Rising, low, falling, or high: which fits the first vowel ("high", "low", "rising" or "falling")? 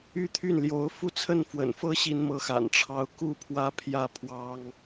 high